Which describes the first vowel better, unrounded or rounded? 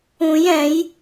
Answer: rounded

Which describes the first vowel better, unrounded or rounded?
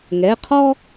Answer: unrounded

